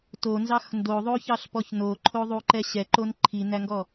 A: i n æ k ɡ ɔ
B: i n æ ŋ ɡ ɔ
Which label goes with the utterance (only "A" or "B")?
B